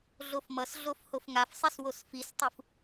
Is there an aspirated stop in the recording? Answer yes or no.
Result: no